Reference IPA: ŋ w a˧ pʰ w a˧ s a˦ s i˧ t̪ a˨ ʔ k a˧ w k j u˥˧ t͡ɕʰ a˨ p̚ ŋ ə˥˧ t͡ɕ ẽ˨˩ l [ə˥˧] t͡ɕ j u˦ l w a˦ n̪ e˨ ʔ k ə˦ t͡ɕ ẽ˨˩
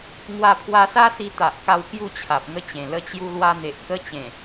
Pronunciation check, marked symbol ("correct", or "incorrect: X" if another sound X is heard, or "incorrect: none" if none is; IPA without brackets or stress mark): correct